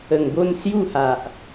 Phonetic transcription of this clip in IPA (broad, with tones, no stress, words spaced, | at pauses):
ə˨˩ŋbo˥˧nsju˥˧ha˨ʔ